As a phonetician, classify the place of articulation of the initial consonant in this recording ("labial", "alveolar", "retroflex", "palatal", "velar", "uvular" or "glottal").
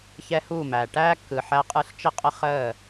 palatal